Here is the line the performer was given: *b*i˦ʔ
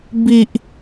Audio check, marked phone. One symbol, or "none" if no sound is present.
b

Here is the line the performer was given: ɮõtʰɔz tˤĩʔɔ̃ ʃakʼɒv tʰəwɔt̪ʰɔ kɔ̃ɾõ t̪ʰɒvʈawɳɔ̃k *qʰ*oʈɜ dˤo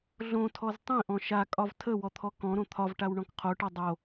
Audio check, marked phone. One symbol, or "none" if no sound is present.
qʰ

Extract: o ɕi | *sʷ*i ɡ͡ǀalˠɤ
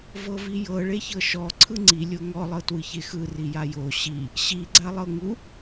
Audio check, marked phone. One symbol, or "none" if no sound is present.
ɕ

